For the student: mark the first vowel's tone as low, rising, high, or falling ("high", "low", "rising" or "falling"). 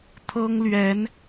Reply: high